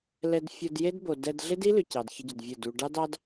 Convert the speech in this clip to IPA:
lɛ˧dfʲo˧d je˦dbo˨dɛ˧d ɮɪ˦di˦lʏ˨ cɑ˨dçə˧ɟʏ˨d vʲə˦˨du˧ ɖɑ˦dɑ˦d

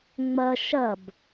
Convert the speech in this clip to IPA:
ŋ͡mɐ ʃɐb

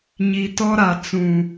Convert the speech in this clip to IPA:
ɲi˨tɔ˦ɾa˨ t͡sũ˨

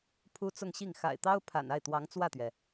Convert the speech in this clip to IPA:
pʰu˥t͡sʊ˥˧ŋɕi˥˩ŋ xa̰˨˩ɪ̯t̪ɑ˥ʊ̯ pʰa̰˨˩na˥˩ɪ̯t̪wɑ˧˥ŋ t͡swä˥˩t̪ɥɛ˩

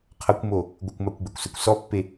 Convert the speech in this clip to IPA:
qʰʌkʷmo | ɡʷəkʷmakʷɡ͡bɛkʷsɛkʷ sɔpːe

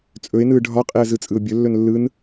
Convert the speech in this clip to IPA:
t͡sʼɵɪ̯nɯː ɖʱɒqʼeə̯zɯt͡sʼɯʊ̯ bʲɵlːɵn lːɯn

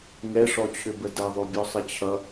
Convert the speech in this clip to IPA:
ŋɛʂɔt͡ɕʰʏbə dʌðˤobʲɔsˤə t͡ɕʰʌ

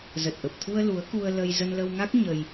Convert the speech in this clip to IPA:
zə˨˩t̚ʔə˨˩p̚t̪ʰu˧ə̯ lu˨˦ə̯ku˧ə̯ lə˧j zə˧nlə˧wŋa˦˥k̚ ɲə˧j

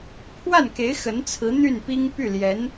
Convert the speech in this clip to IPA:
pʰwa˥˩nke˧˥ɪ̯ xə˧˥nt͡sʰɹ̩˧˥ n̪y˥˩npi˥ŋ py˥˩ljɛ˧˥n

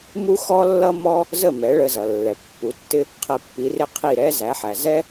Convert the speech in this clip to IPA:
mu˥xɔ˥lːʌ˥mɔ˥ | zə˥˩ mɛ˩˥ɭə˧zʌ˩ lːɛ˩pːu˩˥tːɪ˥ | qʰɛ˧pːi˩˥rɪ˥ qʰi˥˩ɾɛ˥zæ˩˥ħæ˩ zɛ˥

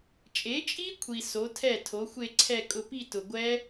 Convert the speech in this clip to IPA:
t͡ʃʼe˩˥t͡ʃʼi˦˥ kʷʰi˩ so˩˥tʰɛ˥˩tʰo˩˥ xʷe˥˧ǀʰɛ˥˧ kʼʊ˧pi˥˧ tʊ˩ɡʷɛ˦˥

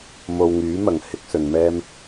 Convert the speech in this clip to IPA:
mo˨wŋyː˨˥mɐ˨˩ŋ hɪ˥k̚sɵ˨˧n mɛː˥m

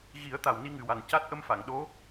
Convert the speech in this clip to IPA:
ɣi˨˩˦ə̯t̪a˨˩w ni˧˥ŋɨ˨˩wa˨˩nca˦˥t̚ ʔə˧mfa˨˩˨ŋɗo˧˥

